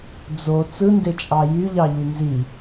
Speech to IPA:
d͡z o t͡s ɯ n d e t͡ʃʼ ɑ j y ʎ ɑ ʎ y n z i

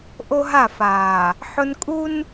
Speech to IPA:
ʔ o˦ ɦ a˦˨ f aː˨ | ħ ʊ˦ n kʼ u˦ n

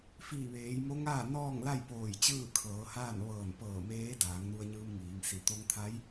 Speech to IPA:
f iː˧˩ ʋ eː˩˧ j m o˧˥ ŋ aː˥˨ n ɔː˥˨ ŋ l a˥˨ j p oː˧˩ j t͡ɕ ɯː˥˨ kʰ ɤː˩˧ h aː˥˨ n ʋ ɤː˧˩ n p ɤː˧˩ m eː˧˥ d aː˩˧ ŋ n u˧ ə̯ ɲ ɯː˧ m ŋ iː˩˧ ŋ s i˧˩ t̪ o˧ ŋ t̪ʰ a˧˥ j

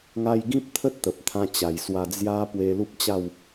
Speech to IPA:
ŋ a˧ j ɡ ĩ˦ p̚ t̪ʰ ə˦ t̚ t̪ ə˨ p̚ t̪ʰ ã˦ t͡ɕ a˨˩ j s w a˧ d͡z j a˦ p w e˧ l u˦ p̚ t͡ɕ a˥˧ w

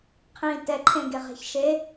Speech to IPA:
qʰ ĩː t ɛ ǃʰ ẽ ɡ e ʁ e̤ ç ʃ e

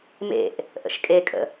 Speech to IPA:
m ḛ ʔ | ʔ ə̰ ʃ kʼ e kʼ ə̰

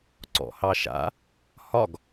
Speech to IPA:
ǀ ɔ̰ h ɑ ʃ a̰ | h ɒ ɡ

